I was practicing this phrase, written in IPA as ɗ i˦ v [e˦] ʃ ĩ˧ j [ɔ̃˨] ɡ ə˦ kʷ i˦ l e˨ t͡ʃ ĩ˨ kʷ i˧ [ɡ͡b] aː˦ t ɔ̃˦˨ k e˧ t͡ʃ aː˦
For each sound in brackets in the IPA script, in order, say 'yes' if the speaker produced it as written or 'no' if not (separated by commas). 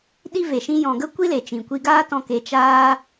no, yes, no